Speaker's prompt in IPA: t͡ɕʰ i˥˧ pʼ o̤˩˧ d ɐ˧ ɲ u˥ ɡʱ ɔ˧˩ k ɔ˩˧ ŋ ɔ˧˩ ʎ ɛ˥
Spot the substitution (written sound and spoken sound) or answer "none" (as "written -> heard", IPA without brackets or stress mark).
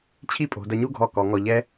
none